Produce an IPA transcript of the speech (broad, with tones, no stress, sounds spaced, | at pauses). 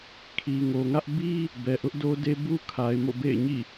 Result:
kʰ i˨ ŋ o˨ ŋ ä˦ ʔ b i˦ | b ɛ˨ ʔ ʊ˦ ʔ d o˦ d e˦ b u˦ kʰ a˨ ɪ̯ m o̰˦˨ b ḛ˦˨ ɪ̯ ɲ ḭ˦˨